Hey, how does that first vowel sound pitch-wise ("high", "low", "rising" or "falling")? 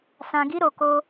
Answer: low